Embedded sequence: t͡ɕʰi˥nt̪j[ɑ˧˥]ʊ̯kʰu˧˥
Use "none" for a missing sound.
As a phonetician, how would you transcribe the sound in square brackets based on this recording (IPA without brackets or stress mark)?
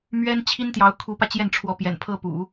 ɑ˧˥